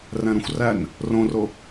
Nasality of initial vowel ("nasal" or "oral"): nasal